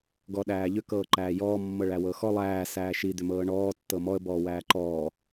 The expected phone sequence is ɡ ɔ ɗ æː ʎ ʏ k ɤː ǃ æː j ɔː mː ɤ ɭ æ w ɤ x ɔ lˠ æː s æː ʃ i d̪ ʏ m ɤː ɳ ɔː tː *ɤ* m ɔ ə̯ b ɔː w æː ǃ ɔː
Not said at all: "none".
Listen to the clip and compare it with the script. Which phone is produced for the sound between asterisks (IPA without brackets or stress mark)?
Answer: ɤ